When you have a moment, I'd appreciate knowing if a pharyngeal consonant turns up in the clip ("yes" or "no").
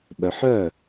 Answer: yes